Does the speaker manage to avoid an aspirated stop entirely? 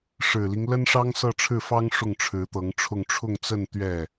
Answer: no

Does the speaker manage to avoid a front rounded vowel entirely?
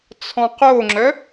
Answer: no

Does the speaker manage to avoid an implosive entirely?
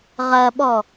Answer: no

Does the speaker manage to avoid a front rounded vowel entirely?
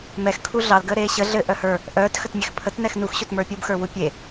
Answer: no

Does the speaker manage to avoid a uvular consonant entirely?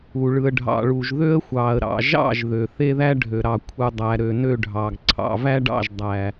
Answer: yes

